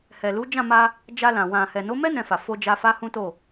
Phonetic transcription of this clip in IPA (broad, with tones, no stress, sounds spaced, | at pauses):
h ɛ˨ l u˨˦ d͡ʒ ã˦˨ m a˧ | d͡ʒ a˧ l ã˨ w ã˨ h ɛ˨ n o˨˦ m ɛ˦ n ɛ̃˧ f a˨ f o˧ d͡ʒ a˧ f a˦ h ũ˦ t o˦˨